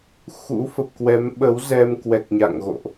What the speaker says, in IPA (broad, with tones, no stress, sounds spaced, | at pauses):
x ṵ˧˥ f ə˨˩ p̚ k w ɛ˨˦ m ɓ ə˨˦ w z ɛ˧ m k w ɛ˨˩ k̚ ɲ a̰˧˨ ŋ ɣ o̰˧˨ ʔ